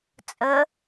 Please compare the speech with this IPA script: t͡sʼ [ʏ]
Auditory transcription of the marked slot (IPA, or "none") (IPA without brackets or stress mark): ə